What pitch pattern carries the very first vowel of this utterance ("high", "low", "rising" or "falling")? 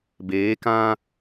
rising